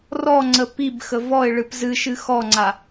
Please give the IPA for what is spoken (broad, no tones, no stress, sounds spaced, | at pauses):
r ɔ ŋ͡ǀ ə p i b x ə v ɔ ɪ̯ ɭ ɨ p z ɨ ʃ ɨ x ɔ ŋ͡ǀ a